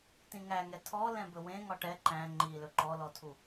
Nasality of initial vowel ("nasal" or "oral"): nasal